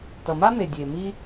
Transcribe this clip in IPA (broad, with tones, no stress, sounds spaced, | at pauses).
t ʌ˩ m a˥ m e˩ dʲ e˩ m i˧